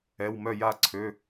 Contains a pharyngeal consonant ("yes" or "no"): no